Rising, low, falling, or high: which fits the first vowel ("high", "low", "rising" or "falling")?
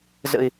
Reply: low